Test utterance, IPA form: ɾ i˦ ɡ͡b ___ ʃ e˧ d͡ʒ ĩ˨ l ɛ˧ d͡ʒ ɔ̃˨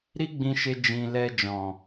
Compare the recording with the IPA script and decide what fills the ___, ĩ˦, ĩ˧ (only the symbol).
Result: ĩ˧